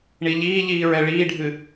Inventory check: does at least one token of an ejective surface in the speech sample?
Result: no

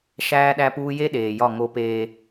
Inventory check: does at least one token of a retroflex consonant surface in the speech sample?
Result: no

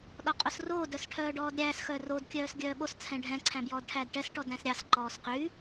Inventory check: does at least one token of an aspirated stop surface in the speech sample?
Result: yes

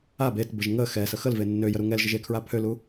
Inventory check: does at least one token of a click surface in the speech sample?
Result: no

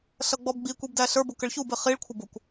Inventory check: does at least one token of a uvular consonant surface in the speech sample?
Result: yes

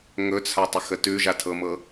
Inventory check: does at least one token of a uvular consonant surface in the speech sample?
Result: no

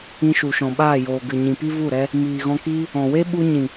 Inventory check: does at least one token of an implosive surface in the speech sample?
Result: yes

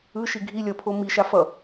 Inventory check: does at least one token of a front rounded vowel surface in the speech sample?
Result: no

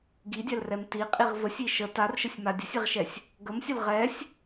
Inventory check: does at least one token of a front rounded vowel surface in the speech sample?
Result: no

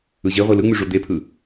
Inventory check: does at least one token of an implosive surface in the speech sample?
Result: no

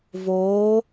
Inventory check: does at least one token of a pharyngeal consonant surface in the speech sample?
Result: no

